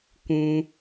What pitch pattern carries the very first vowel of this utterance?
high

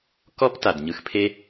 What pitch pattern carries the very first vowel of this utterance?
high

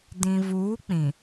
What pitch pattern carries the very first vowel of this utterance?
low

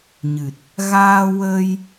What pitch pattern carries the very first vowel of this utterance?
low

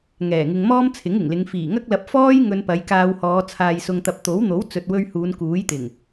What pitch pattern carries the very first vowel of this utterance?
low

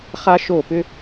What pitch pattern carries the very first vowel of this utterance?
high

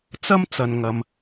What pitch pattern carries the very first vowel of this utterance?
high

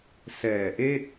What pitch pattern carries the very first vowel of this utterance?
low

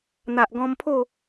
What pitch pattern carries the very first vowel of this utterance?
low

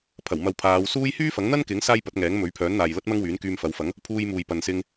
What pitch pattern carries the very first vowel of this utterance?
low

